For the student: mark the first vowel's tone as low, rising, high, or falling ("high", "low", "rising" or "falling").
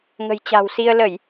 low